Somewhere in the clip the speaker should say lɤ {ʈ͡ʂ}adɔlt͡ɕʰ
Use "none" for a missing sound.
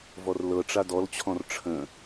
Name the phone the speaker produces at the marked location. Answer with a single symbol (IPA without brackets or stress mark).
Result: ʈ͡ʂ